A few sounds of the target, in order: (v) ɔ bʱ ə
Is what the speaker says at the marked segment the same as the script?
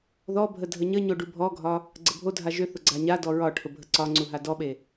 no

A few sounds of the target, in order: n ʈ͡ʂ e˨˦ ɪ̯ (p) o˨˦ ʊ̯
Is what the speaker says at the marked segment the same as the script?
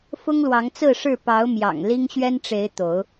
no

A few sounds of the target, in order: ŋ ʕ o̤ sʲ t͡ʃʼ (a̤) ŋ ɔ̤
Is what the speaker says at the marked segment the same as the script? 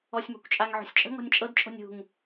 no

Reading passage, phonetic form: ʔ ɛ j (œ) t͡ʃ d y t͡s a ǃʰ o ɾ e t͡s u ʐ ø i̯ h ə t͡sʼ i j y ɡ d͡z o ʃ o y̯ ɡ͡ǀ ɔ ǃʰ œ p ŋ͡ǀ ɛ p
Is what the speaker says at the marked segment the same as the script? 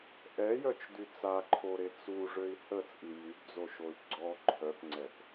yes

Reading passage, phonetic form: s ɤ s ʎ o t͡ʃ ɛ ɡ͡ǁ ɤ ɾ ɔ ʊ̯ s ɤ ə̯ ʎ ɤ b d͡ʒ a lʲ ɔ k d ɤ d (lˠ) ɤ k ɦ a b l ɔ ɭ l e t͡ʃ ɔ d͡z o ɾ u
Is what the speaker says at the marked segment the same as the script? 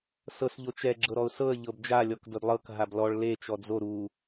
yes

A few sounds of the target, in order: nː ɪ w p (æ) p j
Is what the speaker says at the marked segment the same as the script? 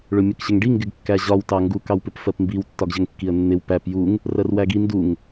yes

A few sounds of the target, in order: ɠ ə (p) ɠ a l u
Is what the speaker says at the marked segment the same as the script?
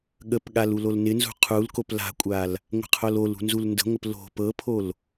yes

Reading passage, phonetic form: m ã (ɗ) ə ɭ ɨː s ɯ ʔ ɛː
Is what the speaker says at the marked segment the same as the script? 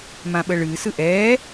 no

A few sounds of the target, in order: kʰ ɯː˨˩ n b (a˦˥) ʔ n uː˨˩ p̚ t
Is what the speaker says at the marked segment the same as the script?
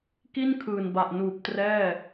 no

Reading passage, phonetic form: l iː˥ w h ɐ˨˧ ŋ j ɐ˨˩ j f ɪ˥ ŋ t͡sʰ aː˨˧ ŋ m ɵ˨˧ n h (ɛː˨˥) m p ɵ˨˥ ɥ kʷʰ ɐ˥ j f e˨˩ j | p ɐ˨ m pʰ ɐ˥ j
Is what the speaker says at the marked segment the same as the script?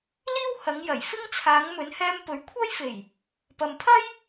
no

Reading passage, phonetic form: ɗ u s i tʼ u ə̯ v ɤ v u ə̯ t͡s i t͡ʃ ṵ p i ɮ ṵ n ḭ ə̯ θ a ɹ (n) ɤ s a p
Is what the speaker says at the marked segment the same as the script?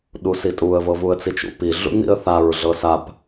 no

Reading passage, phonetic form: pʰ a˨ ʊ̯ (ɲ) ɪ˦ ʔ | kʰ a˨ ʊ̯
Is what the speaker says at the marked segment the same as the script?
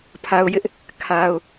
no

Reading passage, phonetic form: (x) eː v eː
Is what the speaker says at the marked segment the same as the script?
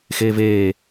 yes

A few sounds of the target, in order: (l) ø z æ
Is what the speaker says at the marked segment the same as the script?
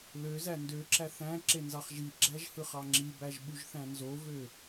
yes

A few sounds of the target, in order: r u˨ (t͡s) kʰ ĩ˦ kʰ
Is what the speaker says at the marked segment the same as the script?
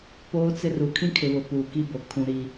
no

